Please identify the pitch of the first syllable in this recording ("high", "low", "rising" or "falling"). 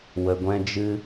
low